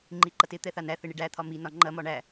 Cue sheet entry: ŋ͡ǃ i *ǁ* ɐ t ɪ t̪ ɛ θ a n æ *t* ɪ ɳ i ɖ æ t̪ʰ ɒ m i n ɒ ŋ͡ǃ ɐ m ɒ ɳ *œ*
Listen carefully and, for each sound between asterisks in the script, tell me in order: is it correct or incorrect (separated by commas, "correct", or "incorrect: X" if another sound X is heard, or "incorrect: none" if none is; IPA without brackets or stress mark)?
incorrect: ǃ, incorrect: θ, incorrect: æ